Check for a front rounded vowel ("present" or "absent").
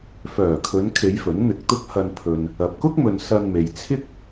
present